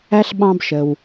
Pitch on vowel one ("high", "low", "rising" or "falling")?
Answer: high